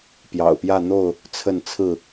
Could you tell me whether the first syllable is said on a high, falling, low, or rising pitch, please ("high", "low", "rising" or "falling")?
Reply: low